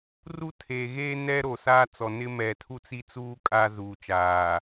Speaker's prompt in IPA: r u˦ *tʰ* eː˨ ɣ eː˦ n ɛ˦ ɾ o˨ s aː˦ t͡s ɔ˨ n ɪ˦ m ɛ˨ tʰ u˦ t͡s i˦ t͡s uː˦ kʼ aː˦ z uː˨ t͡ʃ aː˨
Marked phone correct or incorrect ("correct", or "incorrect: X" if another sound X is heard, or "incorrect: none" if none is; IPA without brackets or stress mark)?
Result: correct